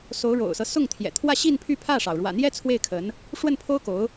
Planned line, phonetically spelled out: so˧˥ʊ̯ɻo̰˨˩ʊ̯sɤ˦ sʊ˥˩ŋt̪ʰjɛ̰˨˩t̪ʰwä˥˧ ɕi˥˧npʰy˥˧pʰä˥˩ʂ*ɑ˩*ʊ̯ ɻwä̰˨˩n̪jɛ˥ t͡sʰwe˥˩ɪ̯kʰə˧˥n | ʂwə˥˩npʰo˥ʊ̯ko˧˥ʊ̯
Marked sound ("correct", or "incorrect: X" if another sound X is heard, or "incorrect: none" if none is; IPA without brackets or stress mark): correct